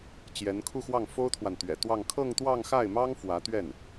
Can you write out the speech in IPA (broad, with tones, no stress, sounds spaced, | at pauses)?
t͡ɕ j ɛ˧˥ n kʰ u˥˧ x w ɑ˥˩ ŋ f o˥ ʊ̯ t̪ʰ w a˨ n t̪ ɥ ɛ̰˨˩ t̪ w ɑ˥˧ ŋ kʰ ɤ˥˧ ŋ t̪ w ɑ˥˧ ŋ x a˥˩ ɪ̯ m ɑ˥ ŋ f w ä˧˥ t̪ ɥ ɛ˥˩ n